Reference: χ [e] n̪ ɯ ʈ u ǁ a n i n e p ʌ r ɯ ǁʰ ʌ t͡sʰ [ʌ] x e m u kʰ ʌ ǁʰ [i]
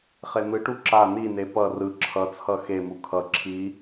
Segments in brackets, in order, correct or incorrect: correct, correct, correct

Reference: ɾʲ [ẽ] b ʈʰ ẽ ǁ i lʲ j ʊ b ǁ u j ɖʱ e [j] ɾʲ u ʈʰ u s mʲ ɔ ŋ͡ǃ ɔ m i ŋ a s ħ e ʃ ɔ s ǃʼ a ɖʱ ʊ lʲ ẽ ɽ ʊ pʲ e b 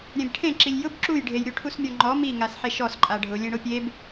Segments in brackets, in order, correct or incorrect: incorrect, correct

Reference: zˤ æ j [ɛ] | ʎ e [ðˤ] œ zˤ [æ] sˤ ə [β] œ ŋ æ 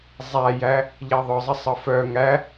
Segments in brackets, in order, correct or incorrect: incorrect, correct, incorrect, incorrect

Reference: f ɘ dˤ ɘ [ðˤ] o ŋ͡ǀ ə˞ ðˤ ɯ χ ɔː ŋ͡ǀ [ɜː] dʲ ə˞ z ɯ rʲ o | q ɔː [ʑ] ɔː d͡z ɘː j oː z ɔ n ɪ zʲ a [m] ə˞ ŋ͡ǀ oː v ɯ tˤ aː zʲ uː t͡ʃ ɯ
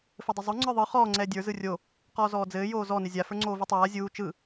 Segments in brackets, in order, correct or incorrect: incorrect, incorrect, incorrect, incorrect

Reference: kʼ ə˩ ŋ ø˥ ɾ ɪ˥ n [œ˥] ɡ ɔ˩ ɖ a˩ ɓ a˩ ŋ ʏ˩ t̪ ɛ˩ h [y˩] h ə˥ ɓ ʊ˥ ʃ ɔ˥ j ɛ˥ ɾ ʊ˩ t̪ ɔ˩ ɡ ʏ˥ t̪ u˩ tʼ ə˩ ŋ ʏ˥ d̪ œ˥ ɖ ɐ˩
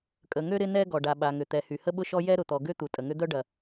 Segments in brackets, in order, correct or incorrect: incorrect, correct

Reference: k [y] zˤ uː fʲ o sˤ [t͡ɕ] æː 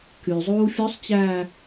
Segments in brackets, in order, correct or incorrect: correct, correct

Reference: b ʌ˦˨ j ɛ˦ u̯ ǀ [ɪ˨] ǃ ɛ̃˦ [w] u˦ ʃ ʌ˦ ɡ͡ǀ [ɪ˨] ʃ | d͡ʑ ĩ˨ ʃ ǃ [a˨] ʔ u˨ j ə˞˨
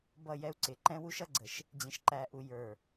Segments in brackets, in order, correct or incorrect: correct, correct, incorrect, incorrect

